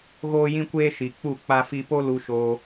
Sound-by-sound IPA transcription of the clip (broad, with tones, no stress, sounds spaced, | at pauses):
ɣ oː˦ j ĩ˦ kʷ eː˦ ʃ i˨ k͡p u˦˨ k͡p a˧ f i˧ p o˦ l u˧ ʃ oː˧